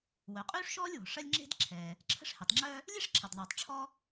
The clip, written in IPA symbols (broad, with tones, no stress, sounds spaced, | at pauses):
w œ˩ qʼ yː˥ ʂ ʃ ɔː˥ lʲ w ɔ̤˩ ʂ ɐ˥ lʲ ŋ͡ǁ e̤˥ d ǁʰ ɛː˩ | ǁʰ ə̤˥ ʂ h e˩ tˤ ŋ͡ǁ œː˥ | lʲ e˥ ʂ ǁʰ ɐ˩ d ðˤ yː˩ tˤ ʈ͡ʂʰ ɔ˥